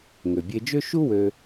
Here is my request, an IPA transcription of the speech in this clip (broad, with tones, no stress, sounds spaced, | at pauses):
ŋ ø˩ bʲ e˧ d͡ʒ ø˥ ʃ u˥ w ø˧